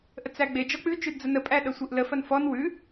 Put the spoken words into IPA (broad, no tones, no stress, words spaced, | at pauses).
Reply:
ʔət͡sæɡ͡be d͡ʒɔk͡pʉ t͡ʃʉdd͡zənə pʼæɗɐsʷeʔlə fɐnfɔn wʉ